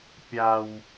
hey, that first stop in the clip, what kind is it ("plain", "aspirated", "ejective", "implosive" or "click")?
plain